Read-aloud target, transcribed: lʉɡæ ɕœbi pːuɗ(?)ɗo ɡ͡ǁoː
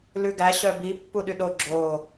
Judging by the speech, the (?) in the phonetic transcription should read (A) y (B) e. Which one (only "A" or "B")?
A